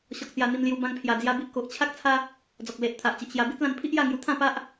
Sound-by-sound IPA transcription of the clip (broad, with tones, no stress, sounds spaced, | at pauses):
ɕ ɔ˨ k̚ t͡s j a˧ n̪ i˧ m l j u˧ b ã˧ ŋ pʰ j a˨˩ d͡z j a˧ b i˦ ʔ k o˨ ʔ t͡ɕʰ a˦ k̚ t͡sʰ a˦ | d͡z ɔ˨ k̚ l e˨ ʔ t̪ʰ a˨ ʔ t͡ɕ i˨ ʔ ɕ j a˧ b i˦ t̚ l ã˧ n pʰ i˦ ʔ j a˥˧ ŋ j u˧ t̪ʰ ã˥˧ p a˦ ʔ